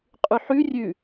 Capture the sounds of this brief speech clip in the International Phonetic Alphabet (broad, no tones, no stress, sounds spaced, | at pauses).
qʼ ʉ ħ ʉ rʲ ʉ